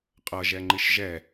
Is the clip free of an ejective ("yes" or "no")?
no